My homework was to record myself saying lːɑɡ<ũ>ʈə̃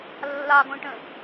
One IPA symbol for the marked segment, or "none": õ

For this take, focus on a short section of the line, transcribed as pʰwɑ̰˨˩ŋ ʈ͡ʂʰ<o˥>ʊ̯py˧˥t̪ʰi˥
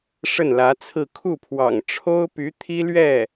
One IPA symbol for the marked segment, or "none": o˥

